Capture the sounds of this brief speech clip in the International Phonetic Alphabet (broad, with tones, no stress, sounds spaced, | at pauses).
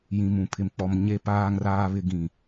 j ĩ˨ m ũ˨ pʰ ɪ˨ m k͡p ɔ˨ m ɲ e˨ p aː˨ ŋ r aː˨ β ɪ˨ ɡ ĩ˨